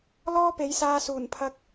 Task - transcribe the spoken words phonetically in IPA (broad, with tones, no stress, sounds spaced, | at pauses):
l ɔː˥ p e˨˥ j s aː˧ s uː˨˩ n pʰ ɐ˧ k̚